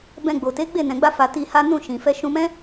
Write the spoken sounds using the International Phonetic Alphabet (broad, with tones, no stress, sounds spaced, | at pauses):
b ɛ̃˧ ɡ͡b o˨ t e˨˦ ɡ͡b e˦˨ n ɛ̃˨ ɡ͡b a˧ f a˧ t i˧ h a˦ n ũ˦˨ ʃ ĩ˨ f ɛ˧ ʃ ũ˧ m ɛ̃˦